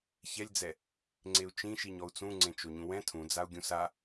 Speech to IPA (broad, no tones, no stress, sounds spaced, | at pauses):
ç ɛ lʲ d͡z ɛ | ŋ͡ǀ e u̯ t͡ʃ ĩ ʃ i ɲ ɔ u̯ t͡s ũ ŋ͡ǀ ẽ t͡ʃ o ɲ ũ w ɛ̃ tʰ ũ d͡z a u̯ ɡʲ ũ s a